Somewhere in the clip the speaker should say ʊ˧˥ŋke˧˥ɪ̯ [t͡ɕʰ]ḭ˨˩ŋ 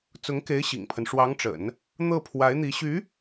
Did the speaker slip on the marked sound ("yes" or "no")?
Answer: yes